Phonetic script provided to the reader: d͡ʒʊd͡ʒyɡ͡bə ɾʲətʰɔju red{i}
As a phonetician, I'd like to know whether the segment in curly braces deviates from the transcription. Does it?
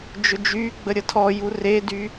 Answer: yes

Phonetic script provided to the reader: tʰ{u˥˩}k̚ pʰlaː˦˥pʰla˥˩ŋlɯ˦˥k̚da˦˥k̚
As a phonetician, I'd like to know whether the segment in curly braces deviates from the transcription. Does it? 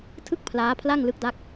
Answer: yes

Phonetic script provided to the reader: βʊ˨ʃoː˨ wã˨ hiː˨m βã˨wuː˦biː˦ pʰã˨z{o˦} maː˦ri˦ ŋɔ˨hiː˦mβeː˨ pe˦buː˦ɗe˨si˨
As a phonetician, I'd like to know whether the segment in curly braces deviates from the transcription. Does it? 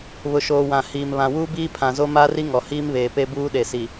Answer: no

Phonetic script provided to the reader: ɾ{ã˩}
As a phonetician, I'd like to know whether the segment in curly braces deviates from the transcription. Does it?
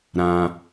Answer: no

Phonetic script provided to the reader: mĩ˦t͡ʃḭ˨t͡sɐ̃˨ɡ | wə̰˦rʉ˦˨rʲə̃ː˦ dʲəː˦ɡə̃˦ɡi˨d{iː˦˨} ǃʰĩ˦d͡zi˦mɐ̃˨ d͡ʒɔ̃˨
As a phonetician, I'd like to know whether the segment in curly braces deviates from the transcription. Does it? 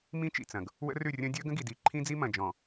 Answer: yes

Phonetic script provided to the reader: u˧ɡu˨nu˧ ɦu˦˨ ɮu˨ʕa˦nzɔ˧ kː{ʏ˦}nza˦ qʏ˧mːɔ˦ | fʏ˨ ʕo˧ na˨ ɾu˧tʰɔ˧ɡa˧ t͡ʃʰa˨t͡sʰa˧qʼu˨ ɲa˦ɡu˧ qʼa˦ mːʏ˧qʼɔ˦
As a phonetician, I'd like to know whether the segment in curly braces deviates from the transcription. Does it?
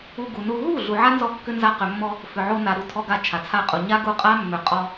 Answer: no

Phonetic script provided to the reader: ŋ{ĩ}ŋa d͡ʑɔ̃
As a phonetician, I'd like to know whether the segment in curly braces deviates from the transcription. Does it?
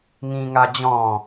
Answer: no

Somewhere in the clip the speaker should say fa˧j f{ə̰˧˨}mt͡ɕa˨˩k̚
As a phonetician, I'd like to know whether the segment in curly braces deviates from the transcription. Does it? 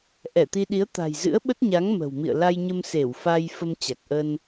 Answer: yes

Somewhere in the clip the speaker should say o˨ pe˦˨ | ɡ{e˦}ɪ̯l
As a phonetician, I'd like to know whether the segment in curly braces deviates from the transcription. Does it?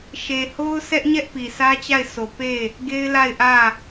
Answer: no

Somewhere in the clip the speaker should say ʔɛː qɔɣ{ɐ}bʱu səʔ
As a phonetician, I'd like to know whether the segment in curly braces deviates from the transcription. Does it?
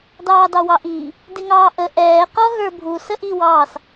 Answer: yes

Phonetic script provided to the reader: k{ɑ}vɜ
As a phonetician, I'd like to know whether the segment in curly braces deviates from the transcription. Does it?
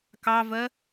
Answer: no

